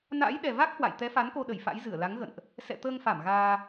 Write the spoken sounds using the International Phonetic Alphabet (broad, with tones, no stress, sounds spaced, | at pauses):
n a̰ː˧˥ j ɗ ɛ˨˩ v a˦˥ k̚ h w a̰˧˨ j t̪ ɛ˨˦ f a˨˦ n k o˧ ɗ ə˧˩ j f a̰˧˥ j z ɨ˧˩ ə̯ l a˨˦ ŋ ɣ ə̰˧˨ n ʔ | s ɛ̰˧˨ t̪ əː˧ ŋ f a˧˩ m ɣ aː˧